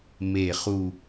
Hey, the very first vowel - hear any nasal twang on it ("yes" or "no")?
no